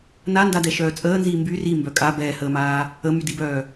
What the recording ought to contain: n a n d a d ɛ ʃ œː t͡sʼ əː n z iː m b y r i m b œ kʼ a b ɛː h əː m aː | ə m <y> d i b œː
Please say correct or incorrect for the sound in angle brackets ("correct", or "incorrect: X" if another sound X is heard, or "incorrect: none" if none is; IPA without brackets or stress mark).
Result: correct